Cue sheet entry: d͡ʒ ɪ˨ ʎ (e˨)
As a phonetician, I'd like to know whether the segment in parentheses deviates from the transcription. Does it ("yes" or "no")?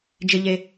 no